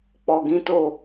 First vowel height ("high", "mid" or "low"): mid